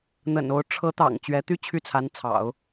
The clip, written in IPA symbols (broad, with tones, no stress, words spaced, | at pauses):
n̪ə̰˨˩no˧˥ʊ̯ ʈ͡ʂʰɤ˧˥t̪ɑ̰˨˩ŋ t͡ɕɥɛ˧˥t̪y˥ t͡ɕʰy˥˩t͡sʰa˧˥nt͡sʰɑ̰˨˩˦ʊ̯